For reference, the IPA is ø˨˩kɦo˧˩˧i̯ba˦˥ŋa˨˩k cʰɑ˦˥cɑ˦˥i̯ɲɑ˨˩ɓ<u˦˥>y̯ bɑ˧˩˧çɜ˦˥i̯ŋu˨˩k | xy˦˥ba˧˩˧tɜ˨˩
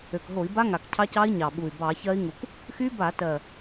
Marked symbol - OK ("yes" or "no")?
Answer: no